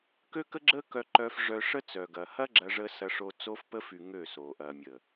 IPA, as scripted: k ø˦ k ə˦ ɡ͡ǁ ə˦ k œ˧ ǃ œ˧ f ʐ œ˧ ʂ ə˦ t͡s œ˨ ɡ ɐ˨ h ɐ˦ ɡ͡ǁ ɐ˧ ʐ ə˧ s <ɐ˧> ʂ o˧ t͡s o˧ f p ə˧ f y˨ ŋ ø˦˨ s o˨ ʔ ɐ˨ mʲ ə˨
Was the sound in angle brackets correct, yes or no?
yes